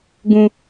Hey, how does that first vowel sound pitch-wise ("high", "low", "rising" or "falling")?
high